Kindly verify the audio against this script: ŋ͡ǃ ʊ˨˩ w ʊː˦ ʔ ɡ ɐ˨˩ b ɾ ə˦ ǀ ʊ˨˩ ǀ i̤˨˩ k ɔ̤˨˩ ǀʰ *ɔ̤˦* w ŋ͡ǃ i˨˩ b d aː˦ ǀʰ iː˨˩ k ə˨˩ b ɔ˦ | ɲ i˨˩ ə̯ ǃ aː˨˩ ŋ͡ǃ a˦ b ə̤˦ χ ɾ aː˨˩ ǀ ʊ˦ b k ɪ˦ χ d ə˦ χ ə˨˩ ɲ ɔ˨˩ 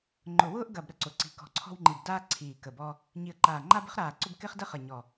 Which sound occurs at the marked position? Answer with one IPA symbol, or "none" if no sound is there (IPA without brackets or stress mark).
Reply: ɔ̤˦